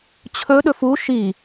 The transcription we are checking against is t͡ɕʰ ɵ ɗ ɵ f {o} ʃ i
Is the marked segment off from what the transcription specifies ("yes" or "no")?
yes